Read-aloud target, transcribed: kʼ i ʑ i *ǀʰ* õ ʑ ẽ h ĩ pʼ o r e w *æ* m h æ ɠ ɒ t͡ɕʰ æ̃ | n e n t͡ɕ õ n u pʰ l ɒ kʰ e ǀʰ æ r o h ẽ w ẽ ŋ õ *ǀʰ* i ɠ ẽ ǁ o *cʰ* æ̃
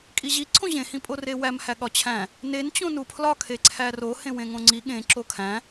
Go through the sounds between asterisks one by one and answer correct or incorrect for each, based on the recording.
correct, correct, incorrect, incorrect

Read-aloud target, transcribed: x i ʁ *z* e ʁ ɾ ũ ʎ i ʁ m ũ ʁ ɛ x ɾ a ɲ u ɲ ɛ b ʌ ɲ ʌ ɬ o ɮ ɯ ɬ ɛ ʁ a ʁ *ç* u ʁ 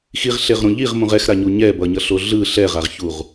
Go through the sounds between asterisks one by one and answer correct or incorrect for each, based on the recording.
incorrect, correct

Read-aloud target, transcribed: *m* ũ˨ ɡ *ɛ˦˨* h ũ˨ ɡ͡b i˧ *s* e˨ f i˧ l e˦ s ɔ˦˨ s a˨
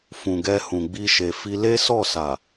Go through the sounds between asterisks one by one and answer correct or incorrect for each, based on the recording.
incorrect, incorrect, incorrect

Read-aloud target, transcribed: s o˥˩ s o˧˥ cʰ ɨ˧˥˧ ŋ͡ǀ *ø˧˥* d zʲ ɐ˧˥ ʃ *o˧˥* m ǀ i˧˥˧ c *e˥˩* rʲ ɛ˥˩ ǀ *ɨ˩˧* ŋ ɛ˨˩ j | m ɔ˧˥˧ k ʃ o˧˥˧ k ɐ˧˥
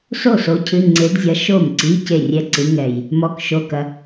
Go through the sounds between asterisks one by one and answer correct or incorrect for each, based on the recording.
incorrect, incorrect, correct, incorrect

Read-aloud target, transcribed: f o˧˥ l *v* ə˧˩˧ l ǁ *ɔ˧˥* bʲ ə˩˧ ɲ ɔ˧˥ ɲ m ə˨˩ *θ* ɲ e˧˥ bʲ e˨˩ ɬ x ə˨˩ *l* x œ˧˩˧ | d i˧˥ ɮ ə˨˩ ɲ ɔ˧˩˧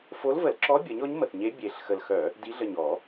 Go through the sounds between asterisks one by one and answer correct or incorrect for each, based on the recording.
correct, correct, correct, correct

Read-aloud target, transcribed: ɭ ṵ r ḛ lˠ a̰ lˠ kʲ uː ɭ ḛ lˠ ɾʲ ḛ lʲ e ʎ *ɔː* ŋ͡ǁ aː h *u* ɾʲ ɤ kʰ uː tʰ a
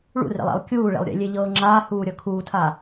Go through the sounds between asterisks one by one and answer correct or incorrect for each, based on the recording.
incorrect, incorrect

